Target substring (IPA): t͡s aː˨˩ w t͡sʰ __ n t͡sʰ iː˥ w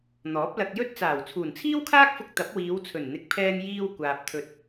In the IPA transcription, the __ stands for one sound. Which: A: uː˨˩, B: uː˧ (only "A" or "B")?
A